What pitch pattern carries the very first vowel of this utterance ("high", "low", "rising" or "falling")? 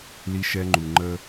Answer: high